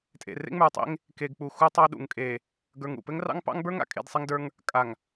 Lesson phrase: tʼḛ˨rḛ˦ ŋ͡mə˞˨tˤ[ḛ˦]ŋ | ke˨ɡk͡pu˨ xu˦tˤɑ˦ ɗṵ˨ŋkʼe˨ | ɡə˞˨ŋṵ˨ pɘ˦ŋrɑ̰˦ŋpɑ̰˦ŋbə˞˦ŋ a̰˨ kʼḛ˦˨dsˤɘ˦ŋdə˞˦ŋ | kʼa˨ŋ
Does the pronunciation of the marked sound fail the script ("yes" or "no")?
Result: no